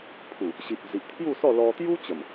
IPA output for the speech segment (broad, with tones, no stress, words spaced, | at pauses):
pʰu˨˩ | ɕi˨p̚d͡zi˨ʔ t̪ʰju˥˧sɔ˥˧ lɔ˧t̪ju˦ t͡ɕə˨˩m